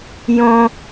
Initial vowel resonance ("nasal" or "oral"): nasal